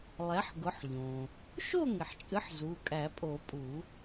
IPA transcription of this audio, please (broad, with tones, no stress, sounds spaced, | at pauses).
lˠ ɛ˩˥ ħ ɡ ʊ˩˥ ħ ʎ õ˩ | ʃ o˥˨ ŋ ɪ˩ ħ t͡ʃʼ ɨ˩˥ ħ z u˩˧˩ kʼ æ˨˩˦ pʼ o˨˩˦ pʼ u˨˩˦